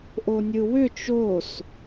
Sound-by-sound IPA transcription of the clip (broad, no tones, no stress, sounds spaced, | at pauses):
ʔ o nʲ ɯ w ʏ t͡ʃ o s